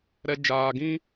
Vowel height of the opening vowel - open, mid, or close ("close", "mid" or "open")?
mid